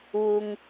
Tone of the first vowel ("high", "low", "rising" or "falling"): low